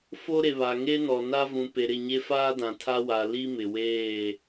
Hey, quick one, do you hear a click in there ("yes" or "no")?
no